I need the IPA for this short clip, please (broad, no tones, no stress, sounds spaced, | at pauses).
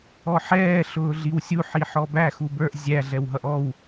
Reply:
ɔ ħ ɛː ɬ ʊː ɮ i w sʲ u ħ i ħ ɔ b æ x u b ə˞ ʔ zʲ æ ɮ ɛ w ɦ ʌ ʔ ɔ w